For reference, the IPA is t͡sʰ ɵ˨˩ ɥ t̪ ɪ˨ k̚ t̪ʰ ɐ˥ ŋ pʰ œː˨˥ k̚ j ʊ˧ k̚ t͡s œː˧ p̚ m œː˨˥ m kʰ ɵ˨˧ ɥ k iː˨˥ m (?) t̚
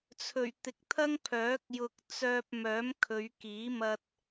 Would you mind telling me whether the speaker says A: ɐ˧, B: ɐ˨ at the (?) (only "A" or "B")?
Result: A